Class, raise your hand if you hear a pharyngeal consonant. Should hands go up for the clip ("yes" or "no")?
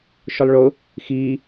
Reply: no